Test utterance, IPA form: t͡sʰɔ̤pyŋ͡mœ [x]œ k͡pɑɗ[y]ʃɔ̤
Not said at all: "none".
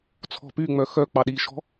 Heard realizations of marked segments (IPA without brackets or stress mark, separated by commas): x, i